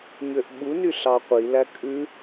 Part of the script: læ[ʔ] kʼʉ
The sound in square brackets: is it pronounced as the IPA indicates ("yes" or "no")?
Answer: no